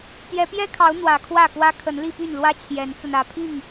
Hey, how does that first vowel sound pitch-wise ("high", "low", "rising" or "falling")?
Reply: rising